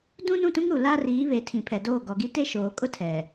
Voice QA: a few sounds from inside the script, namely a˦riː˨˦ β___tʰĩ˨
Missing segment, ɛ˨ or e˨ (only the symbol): e˨